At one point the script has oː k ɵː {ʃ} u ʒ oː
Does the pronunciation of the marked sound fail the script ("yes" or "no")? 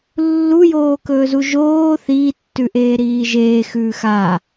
yes